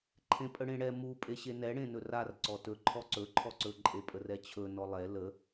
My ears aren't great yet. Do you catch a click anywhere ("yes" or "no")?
yes